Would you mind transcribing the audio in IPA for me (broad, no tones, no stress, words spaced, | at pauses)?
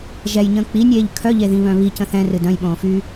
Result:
ʒɛjɲə̃ː k͡pinʲeːʎ kʰœʎeðĩβœ̃ βicə̃ θɛ̃rɨ dœ̃jɓõːfyː